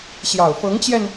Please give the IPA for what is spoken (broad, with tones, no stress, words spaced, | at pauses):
ɕjɑ˨˩ʊ̯fɤ˧˥ŋt͡ɕjɛ˧n